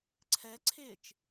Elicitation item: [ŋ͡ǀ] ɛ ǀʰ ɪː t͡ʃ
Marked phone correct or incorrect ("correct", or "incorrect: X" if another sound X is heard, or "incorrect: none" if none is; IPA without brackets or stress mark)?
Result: incorrect: ǀʰ